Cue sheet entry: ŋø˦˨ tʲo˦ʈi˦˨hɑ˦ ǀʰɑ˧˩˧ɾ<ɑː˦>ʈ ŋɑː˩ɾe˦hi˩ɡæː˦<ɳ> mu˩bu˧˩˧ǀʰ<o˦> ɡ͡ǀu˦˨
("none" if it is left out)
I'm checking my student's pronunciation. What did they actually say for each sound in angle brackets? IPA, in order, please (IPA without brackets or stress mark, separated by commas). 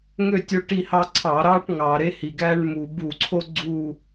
ɑː˦, ɳ, o˦